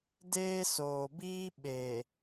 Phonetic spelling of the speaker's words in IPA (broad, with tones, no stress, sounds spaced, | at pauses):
d eː˦ s oː˨ b iː˦ ɓ e˨